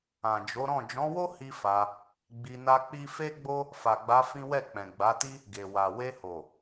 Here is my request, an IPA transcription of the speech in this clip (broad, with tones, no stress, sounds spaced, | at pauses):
ã˨ d͡ʒ o˨˦ ɾ ɔ̃˦˨ d͡ʒ ɔ̃˨˦ w o˦ h i˦ f a˧ | ɡ͡b i˧ n a˦ k͡p i˦ f e˦ ɡ͡b o˦ | f a˨ ɡ͡b a˨˦ f ĩ˦ w ɛ˦˨ k͡p ɛ̃˨ ɡ͡b a˨˦ t i˦ | ɡ e˨ w a˨ w e˧ h o˨